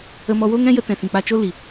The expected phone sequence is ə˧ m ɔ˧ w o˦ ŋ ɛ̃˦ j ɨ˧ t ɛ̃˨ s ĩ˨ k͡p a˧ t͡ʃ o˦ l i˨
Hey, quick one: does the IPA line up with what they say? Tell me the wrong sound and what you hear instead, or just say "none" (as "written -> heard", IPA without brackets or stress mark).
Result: ɨ˧ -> ə˧